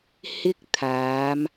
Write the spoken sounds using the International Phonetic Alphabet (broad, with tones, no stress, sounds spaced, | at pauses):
h ɪ˥ k̚ t̪ʰ aː˨˧ m